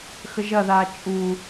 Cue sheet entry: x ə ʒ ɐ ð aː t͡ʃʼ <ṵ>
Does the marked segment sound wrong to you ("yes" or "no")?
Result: yes